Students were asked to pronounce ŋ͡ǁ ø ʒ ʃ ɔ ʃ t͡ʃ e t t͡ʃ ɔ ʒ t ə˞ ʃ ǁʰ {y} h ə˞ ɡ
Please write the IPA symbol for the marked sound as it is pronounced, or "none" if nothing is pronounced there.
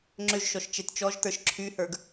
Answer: y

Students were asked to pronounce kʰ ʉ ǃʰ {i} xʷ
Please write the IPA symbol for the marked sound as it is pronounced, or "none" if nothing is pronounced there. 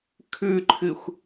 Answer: ɨ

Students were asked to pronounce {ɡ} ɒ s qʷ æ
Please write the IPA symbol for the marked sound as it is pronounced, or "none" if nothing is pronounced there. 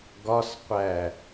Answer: ɡ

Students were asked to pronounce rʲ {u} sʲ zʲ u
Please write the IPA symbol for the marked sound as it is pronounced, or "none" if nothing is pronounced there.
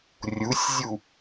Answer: u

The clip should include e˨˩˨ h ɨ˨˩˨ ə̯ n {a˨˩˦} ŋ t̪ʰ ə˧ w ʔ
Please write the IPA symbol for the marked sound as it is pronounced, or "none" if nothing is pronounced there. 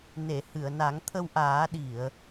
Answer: a˨˩˦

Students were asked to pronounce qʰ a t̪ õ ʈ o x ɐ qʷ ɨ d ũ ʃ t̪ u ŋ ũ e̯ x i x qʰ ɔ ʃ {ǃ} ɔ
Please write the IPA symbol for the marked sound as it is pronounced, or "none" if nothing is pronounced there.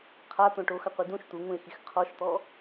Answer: t̪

